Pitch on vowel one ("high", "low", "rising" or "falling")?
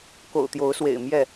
low